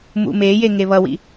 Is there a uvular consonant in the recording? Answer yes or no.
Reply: no